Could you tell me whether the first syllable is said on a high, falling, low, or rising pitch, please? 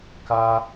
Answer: high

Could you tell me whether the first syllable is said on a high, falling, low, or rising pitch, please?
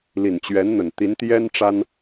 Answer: low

